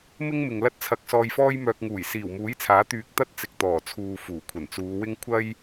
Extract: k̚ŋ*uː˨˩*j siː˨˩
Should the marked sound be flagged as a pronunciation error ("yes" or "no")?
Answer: no